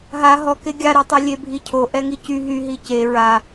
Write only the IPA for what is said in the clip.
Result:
ɦa ɦɔ keɡʲaɾetˤɛ lʲebʱicʰo ʔɛŋicy ɦyɦi ce ɹa

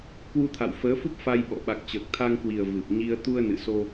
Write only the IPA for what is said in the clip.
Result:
kwu˧t̪ʰa̰˧˨wfəː˨˦fu˦˥p̚ fa˧jɓɔ̰˧˨ ɓa˨˩k̚t͡ɕəː˨˩k̚t̪ʰa˧ŋkwi˨˩ə̯ vɨ˨˩p̚ ɲi˧ə̯ t̪u˧ə̯nɨ̰˧˨so˧

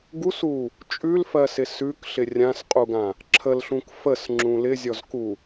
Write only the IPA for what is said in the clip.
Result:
ɡusu | t͡ʃʼʉlfɜsɪ sʉkɬɪ rʲãsqʼuɡã | ǁʰəlɬũk fəsŋ͡ǁũ lɪzʲɔzku

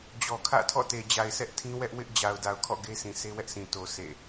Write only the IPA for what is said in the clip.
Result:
d͡ʑɔ˨kʰä̰˦˨tʰɔ̰˦˨te˨ d͡ʑa˨ɪ̯sʰɛ˦ʔ tʰĩ˦ wɛ˦ʔ wɪ˦ʔ d͡ʑa˨ʊ̯da˨ʊ̯kʰɔ̰˦˨ ɡe˦sʰĩ˨ sʰe˦wɛ˦ʔsʰĩ˨ to˨ sʰḛ˦˨

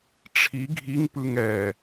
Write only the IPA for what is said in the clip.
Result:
ʈ͡ʂʰi ɡʱiŋpɯŋ ɛ

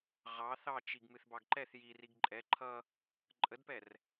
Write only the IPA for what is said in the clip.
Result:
ʁɑ θɑt͡ʃiɡmɨθ bɑɡǃɛθ ji riɡǃʼɛ ǃʰʌ | ǃʼədpɛr

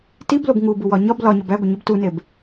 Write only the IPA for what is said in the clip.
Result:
tiblob ŋubuwɒ ɲɒb lɒɲɒb æɡʷeɲib tuneb

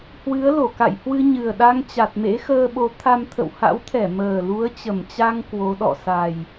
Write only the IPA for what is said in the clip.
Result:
hwɨ˨˦ə̯lo˧˩ ka̰˧˨jhwɨ˧ɲɨ˨˩ə̯ɗa˧ŋ t͡ɕa˨˩t̚mḛ˧˥xəː˧ɓo˨˦ t̪ʰa˧mt̪ʰə̰˧˨w ha̰˧˥wt̪ʰɛ˧˩ məː˨˩lu˨˦ə̯t͡ɕə˨˩mt͡ɕa˧ŋ kwo˨˦ɗɔ̰˧˨ sa˨˩j

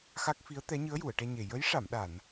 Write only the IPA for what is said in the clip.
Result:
xa˦˥k̚fi˧˥ə̯t̪ɛ˧˥ ɲɨ˧˥ə̯ju˨˩˨ə̯ʈɛ˧ɲe˨˩ jə˧˥jʂa˨˩˨mɗa˨˩˨n

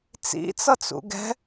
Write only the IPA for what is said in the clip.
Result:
t͡sḭt͡sʌt͡sṵ ɡɛ̤

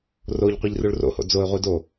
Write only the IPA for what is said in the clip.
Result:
roʎ qʷiʎruɭro̰ho̰ d͡zoɪ̯ʁʷi do

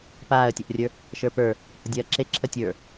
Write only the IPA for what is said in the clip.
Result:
paːə̯tʲɐʔrʲə˞ | ʃə˞pə˞ | hədʲɐːǁe ǁʰətʲə˞

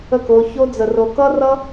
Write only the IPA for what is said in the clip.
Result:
ə˦˨ko˧ço˦ d͡zə˧ro˧ kʌ˦rʌ˦

